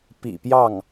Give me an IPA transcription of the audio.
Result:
pḭ˨˩pjɑ˥˩ŋ

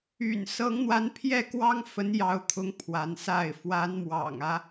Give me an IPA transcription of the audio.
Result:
y̰˨˩nsɤ˧˥ŋn̪wa˧˥npʰjɛ˥˩ kwɑ˥ŋfə˧˥njɑ˧˥ʊ̯t̪ʰʊ˧˥ŋ pʰwa˧˥nsa˥˩ɪ̯ fwa˧˥nmwɑ̰˨˩ŋä˦

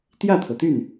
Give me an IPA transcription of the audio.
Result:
t̪jä˥˩t̪ʰɤ˩t̪y˥˩n

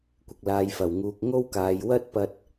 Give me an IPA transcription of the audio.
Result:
kʷɪ˨k̚laː˨jfɐ˨˩wŋuː˨k̚ ŋo˥wkaː˨j wɐ˥t̚pɐ˧t̚

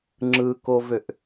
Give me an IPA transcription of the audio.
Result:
ŋ͡ǁɯkovøʔ

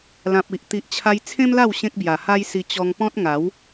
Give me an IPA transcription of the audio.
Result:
lã˨p̚ i˨ʔ t̪i˨ʔt͡ɕʰa˧j t͡sʰẽ˦mla˥˧w ɕẽ˦k̚bja˨˩ha˦jsi˧ t͡ɕɔ˧ŋpɔ̃˦t̚ŋa˨˦w

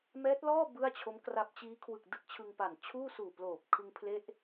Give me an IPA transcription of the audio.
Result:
mɛː˦˥t̚lɔː˥˩ bɯ˥˩a̯t͡ɕʰo˦˥mkra˦˥p̚ t͡ɕiː˦˥kʰwɯ˨˩k̚ dɯ˥˩k̚t͡ɕʰɯ˧ŋpa˨˩n t͡ɕʰuː˥˩suː˨˩ploː˨˩p̚ kʰɯ˧ŋpʰle˥˩ʔ

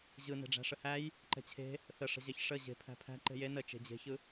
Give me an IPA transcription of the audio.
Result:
ʑɯ ne̤ɖ͡ʐæ̤ʂəhæj | ǃɛ̤t͡ɕʰe̤ | θəʂə̤ʑɛç ʂə ʑe̤ pʰæ̤pʰæ̤ ǃe̤je nə t͡ʃe̤d͡ʑe̤çɯ

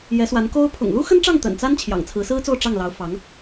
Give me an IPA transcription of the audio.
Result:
jɛ˧˥swa˧˥nko˥ʊ̯ pʰʊ̰˨˩ŋlu˥xə˥nʈ͡ʂɑ˥˩ŋ t̪ə̰˨˩nt͡sa˥n t͡ɕʰjɑ̰˨˩ŋt͡sʰɹ̩˧˥sɹ̩˥t͡so˥˧ʊ̯ ʈ͡ʂɑ˥˩ŋlɑ˧˥ʊ̯fɑ˧˥ŋ

